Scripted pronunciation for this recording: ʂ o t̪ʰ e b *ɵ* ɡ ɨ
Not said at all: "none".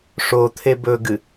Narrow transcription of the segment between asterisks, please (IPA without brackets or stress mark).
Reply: ɵ